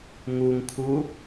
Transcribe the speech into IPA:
ŋ u ŋ kʰ u

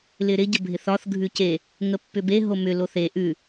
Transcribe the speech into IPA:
l ɪ ɾ ɪ ɟ ə bʱ ɪ θ ɒ θ ɡʱ ʉ c e | ŋ ə pː ʏ b e ɦ o m ʏ l o θ e ʔ ʉ

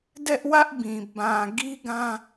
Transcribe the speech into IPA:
d ɛ˦ ʔ w ä˦ ʔ b ĩ˨ b ã˨ ɡ i˦ ɡ ã˦

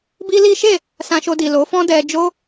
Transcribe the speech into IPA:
b i˦ l i˦ ʃ e˦˨ | s ã˧ ʃ o˧ d i˨ l o˨˦ f ɔ̃˦ d ɛ˧ d͡ʒ o˦

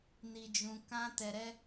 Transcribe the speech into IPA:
n i˧ d͡ʒ ũ˧ k ã˦ t ɛ˧ ɾ ɛ˦

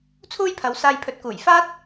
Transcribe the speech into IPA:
t͡sʰ uː˥ j pʰ ɐ˨˧ w s aː˧ j pʰ ɵ˨˥ t̚ k uː˨˩ j f aː˥ t̚

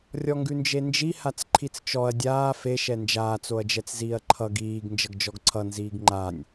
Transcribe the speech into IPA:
rʲ ɔ ŋ ɡ ʉ n d͡ʒ e n d͡ʒ i h a t͡s ǃʰ i t͡s t͡ʃ ɔ ɐ̯ dʲ aː f e ʃ ɛ n d͡ʒ aː t͡s o ɐ̯ d͡ʒ ɛ t͡s z iː ɐ̯ ǃʰ ʌ ɡ iː ɡ n d͡ʒ ʌ ɡ d͡ʒ ɔ ɡ ǀʰ ʌ n z iː ɡ ŋ͡ǃ a nʲ

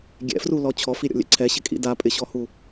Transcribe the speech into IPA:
ɡʲ ɛ̰ f r u l ɔ t͡ɕʰ ɔ f i ɾʲ ɔ̰ lʲ ɛ̰ ǀʰ ɛ ɕ ɪ kʼ ḭ d a pʼ ɪ ɕ ɔ h u

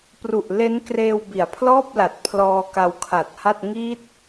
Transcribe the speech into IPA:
p r u˨˩ ʔ l e˦˥ n k r eː˧ w b i˩˦ a̯ pʰ l ɔː˥˩ p̚ l a˨˩ t̚ pʰ l ɔː˧ k a˧ w kʰ a˨˩ t̚ h a˥˩ t̚ ŋ i˦˥ t̚

